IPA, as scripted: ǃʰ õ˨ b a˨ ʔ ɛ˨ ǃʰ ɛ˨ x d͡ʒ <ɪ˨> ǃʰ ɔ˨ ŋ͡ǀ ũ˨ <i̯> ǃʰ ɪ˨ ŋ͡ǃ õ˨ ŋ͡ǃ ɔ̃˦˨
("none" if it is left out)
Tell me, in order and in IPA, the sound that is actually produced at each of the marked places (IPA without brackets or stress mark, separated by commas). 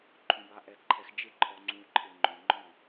ɪ˦, y̯